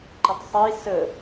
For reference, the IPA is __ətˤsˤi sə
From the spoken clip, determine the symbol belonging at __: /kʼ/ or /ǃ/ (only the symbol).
ǃ